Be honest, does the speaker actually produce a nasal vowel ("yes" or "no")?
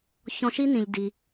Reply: yes